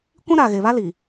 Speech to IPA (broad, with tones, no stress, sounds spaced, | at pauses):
kʷ ĩ˦ ɾ aː˨ ɣ e˨ β a˦ l i˨